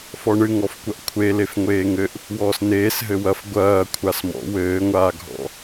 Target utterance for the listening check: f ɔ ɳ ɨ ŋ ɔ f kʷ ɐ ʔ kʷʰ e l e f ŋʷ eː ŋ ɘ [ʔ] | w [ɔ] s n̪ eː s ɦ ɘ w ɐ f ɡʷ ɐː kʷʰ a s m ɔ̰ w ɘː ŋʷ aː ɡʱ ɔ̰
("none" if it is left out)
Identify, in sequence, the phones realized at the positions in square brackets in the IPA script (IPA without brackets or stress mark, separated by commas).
ʔ, ɔː